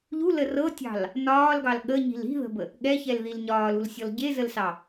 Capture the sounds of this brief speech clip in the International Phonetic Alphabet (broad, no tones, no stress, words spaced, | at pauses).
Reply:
ʎulə rɤtʲɑ̤l | nɒːlɡɑl ɠəɲi̤l i̤ðə̤bə | ɠɛçɛlðil ɲɒːlulsʲɔl ɟezəlsɑ